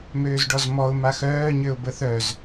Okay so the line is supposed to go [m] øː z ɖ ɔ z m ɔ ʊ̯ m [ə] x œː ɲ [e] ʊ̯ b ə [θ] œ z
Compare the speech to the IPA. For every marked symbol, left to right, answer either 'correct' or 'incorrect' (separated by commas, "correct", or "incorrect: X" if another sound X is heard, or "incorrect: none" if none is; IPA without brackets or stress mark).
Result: correct, incorrect: a, incorrect: ø, correct